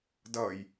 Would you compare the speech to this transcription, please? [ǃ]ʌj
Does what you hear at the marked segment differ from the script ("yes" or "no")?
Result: yes